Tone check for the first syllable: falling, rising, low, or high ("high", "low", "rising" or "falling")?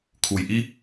low